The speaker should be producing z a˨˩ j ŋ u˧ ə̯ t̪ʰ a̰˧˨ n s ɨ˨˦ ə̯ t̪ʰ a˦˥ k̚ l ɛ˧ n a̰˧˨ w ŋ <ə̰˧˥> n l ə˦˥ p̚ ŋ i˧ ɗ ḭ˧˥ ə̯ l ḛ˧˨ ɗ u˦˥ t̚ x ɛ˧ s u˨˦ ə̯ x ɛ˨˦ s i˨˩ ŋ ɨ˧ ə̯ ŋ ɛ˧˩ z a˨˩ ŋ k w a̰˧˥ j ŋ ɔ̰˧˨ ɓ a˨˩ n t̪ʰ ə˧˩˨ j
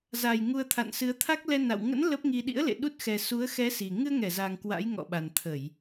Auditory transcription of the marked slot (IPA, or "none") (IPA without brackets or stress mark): ə̰˧˥